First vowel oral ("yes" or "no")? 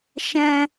no